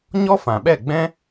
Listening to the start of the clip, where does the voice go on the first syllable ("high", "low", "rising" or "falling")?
high